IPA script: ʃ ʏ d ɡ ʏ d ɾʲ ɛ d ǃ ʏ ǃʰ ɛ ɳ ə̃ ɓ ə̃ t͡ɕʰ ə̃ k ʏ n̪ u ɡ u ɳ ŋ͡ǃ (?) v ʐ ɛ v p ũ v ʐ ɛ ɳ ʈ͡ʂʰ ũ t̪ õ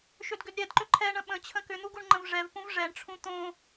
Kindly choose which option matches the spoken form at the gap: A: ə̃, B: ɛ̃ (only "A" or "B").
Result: A